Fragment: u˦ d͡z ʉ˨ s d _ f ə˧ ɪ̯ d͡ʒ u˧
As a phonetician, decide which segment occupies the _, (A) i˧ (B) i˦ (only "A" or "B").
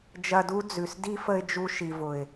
B